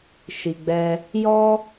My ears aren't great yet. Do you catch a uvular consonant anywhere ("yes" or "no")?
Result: no